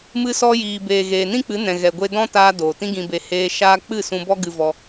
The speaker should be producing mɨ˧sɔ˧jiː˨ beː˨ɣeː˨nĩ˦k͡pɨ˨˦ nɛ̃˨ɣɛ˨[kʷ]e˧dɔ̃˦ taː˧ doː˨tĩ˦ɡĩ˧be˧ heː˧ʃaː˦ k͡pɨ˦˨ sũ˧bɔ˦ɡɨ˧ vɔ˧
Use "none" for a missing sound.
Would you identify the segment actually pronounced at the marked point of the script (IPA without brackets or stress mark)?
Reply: ɡʷ